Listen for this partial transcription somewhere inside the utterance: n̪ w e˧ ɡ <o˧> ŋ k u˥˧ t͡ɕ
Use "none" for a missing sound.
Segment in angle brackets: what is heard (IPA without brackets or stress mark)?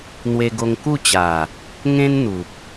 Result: o˧